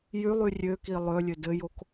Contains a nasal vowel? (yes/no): no